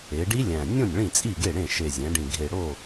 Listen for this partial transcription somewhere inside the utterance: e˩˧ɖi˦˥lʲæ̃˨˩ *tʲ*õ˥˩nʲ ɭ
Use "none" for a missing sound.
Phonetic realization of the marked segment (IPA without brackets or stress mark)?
nʲ